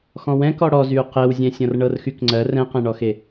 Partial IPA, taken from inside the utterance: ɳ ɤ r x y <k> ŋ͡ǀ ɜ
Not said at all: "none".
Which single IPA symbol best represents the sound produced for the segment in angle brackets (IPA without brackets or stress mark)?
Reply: k